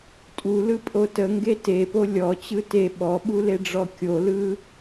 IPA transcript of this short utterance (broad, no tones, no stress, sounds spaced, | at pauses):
tʼ u l ɯ pʼ o t ə ŋ ɡ e t e p o lʲ ɔ t͡ɕ ɯ t e ɓ ɔ ɓ u l e ɖ͡ʐ ɔ kʲ o l ɯ